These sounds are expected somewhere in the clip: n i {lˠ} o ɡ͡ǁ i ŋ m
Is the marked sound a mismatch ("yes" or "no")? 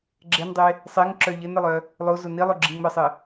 no